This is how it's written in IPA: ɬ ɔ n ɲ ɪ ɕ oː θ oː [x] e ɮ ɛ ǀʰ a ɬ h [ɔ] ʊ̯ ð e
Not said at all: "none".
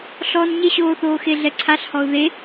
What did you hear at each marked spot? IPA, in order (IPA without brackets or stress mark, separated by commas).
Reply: x, ɔ